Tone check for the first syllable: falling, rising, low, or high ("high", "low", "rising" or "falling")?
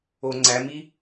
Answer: low